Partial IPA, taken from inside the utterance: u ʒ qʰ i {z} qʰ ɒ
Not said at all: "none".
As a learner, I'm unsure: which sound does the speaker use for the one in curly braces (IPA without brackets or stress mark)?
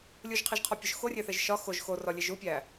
ʒ